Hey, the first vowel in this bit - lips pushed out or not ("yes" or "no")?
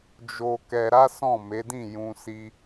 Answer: yes